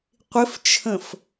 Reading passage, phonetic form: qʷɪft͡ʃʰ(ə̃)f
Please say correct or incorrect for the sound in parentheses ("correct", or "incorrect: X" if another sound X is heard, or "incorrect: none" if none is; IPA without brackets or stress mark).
correct